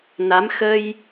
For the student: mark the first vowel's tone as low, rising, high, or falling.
rising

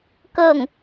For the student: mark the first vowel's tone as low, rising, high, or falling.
falling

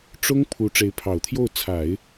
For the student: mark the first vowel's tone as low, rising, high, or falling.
high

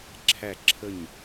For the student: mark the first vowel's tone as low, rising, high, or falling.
falling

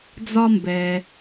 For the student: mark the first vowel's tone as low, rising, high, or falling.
high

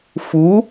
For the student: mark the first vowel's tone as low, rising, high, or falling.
rising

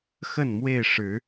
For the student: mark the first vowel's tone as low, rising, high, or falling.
falling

